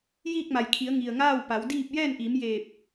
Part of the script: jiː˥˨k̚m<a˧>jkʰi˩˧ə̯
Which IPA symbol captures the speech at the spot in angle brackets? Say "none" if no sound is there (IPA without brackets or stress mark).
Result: a˩